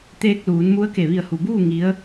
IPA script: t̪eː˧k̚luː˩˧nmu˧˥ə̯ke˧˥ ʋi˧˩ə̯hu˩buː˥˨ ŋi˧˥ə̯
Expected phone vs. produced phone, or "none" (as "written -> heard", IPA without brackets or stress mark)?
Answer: e˧˥ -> e˧˩